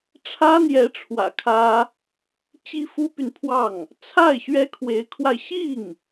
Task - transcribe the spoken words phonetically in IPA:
ʈ͡ʂʰ ä˥ n̪ j ɛ˧˥ ʈ͡ʂʰ w ä̰˨˩ kʰ ä˥ | t͡ɕ i˥ f u˥ p y˨ n pʰ w ɑ˥˩ ŋ | t͡sʰ a˥˩ ɪ̯ ɕ ɥ ɛ˥ kʰ w e˧˥ ɪ̯ kʰ w a˧ ɪ̯ ɕ i˥˩ ŋ

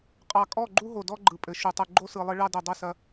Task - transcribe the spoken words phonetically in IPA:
qʼ ɑ˨ kʼ ɔ˦˨ ɡ͡ǃ u˦ ɦ o˨ d ɔ˦ ɡ͡ǃ ɯ˨ pʼ ɘ˨ ʃ u˨ tˤ ɯ˨ ɡ͡ǃ o˦ s ɯ˨ lˠ ɘ˦ ɭ ɑ˦ d ɘ˨ dˤ ɘ˦˨ s ɐ˦

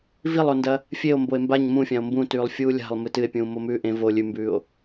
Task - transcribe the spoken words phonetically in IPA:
v i lˠ o n d ɐ | fʲ e o̯ m b o e̯ m b a ɲ m ũ fʲ ã o̯ m b ũ t ʉː lˠ fʲ uː lʲ a̤ lˠ m ɨ t ɨ e̯ pʲ ũː m o m ʉː ʔ ẽ v o lʲ ʉ m b ʉː o̯

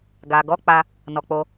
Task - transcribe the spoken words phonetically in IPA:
ɡ a˨ ɡ ɔ˨˦ k͡p a˧ | n ɔ˧ k͡p o˦

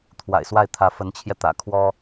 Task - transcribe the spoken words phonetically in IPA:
t̪ʰ w a̰˨˩ ɪ̯ s w a˥˩ ɪ̯ t̪ʰ ä˧˥ f ə˧˥ n t͡ɕʰ j ɛ˧ t̪ ä̰˨˩ kʰ w ɔ˥

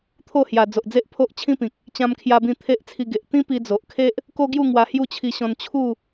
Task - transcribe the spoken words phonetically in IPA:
t̪ʰ o˥˧ h j a˨˩ d͡z o˨ ʔ d͡z e˦ ʔ pʰ o˦ ʔ t͡ɕʰ ĩ˦ p ĩ˨ k̚ | t͡ɕ ã˧ m kʰ j a˧ b ĩ˧ t̪ʰ e˦ ʔ t͡sʰ i˧ ɡ e˨ ʔ t̪ ĩ˦ p i˧ d͡z o˨ ʔ kʰ e˦ ʔ | k o˦ ɡ j u˥˧ ŋ w a˧ h j u˥˧ t͡ɕʰ i˧ ɕ ɔ̃˧ n t͡ɕʰ u˥˧

